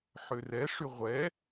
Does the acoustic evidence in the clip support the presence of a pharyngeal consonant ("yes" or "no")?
yes